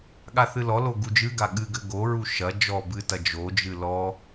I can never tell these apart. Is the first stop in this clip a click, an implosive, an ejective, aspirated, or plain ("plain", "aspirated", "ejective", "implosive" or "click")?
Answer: implosive